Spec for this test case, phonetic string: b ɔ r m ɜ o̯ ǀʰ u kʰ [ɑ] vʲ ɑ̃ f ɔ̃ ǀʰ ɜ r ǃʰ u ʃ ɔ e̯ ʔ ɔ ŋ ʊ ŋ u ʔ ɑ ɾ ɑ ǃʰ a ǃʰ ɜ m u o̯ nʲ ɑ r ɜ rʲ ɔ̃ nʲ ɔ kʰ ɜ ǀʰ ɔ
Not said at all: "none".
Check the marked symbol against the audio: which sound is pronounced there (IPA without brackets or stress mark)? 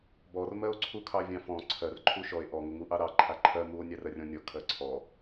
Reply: ɑ